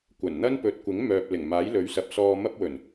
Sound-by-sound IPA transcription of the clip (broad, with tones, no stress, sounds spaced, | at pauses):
kʷ ɐ˨˩ n n̪ ɐ˥ n p ɵ˨˥ t̚ kʷ ɪ˨˥ ŋ m œː˨ p̚ l ɪ˨˩ ŋ m aː˨˥ j l ɵ˨˥ ɥ s ɐ˨˥ p̚ s ɔː˧ m ɐ˥ p̚ w ɵ˨˩ n